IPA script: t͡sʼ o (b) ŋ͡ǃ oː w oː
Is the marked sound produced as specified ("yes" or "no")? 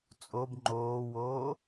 yes